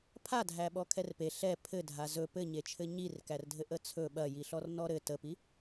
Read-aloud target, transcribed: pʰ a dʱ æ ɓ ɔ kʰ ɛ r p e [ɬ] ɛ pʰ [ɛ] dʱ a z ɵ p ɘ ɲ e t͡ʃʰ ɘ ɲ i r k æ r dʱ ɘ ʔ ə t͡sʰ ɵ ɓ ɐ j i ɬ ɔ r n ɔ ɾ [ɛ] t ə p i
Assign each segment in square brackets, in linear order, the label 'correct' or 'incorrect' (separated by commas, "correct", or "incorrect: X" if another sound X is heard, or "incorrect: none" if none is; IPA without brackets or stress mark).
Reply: correct, incorrect: ɘ, incorrect: ɘ